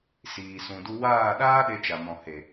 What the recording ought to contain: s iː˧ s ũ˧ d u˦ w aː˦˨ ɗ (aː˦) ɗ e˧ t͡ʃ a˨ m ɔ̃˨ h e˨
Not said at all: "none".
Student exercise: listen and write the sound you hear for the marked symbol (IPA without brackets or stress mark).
aː˦